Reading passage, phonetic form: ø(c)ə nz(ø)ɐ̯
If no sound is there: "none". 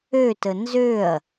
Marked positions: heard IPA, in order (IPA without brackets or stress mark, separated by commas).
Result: t, ø